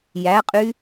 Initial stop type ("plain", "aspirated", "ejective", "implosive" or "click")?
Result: ejective